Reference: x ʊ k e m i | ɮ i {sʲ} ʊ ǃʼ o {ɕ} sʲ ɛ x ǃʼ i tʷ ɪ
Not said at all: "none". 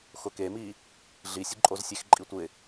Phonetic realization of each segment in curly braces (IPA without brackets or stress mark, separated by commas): sʲ, z